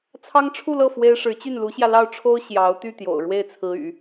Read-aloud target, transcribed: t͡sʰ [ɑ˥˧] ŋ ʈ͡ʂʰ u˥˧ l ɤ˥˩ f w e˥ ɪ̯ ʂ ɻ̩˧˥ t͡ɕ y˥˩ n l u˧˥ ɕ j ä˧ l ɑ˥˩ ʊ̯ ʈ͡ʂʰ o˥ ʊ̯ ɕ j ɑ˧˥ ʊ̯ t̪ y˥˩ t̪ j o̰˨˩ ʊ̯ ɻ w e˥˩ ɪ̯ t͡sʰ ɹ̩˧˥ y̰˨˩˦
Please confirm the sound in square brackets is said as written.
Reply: no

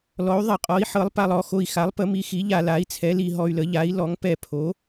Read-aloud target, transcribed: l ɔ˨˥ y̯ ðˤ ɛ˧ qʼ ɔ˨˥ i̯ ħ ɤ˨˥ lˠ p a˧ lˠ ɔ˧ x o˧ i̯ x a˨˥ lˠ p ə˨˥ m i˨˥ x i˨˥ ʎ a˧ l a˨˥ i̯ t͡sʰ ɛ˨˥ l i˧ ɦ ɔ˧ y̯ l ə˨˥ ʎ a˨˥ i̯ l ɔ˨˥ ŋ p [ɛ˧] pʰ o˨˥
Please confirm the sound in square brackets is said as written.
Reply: yes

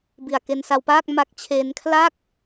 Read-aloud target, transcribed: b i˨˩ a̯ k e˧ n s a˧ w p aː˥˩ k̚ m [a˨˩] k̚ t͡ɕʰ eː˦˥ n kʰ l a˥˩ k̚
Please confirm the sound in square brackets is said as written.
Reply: no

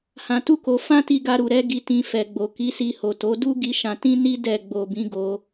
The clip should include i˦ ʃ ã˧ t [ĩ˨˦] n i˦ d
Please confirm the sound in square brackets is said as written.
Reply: no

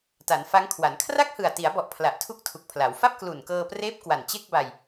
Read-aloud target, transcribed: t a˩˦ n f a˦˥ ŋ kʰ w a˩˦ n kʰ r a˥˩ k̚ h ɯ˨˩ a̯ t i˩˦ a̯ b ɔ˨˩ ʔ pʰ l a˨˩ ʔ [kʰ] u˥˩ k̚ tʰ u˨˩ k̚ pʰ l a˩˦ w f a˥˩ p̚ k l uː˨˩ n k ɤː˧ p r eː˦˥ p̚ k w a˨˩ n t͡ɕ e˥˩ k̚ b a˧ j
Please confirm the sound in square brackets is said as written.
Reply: no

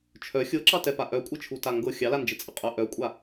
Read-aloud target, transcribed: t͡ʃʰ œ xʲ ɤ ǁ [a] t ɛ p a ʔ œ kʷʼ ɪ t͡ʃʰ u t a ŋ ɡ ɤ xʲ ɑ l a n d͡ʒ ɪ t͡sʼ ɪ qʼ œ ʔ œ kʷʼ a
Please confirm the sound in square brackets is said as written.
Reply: no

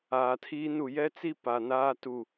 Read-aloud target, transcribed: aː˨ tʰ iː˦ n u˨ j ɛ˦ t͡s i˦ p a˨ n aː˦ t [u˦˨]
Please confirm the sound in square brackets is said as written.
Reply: yes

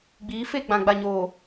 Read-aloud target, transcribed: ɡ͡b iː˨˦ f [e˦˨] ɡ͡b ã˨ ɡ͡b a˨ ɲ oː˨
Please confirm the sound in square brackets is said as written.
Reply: yes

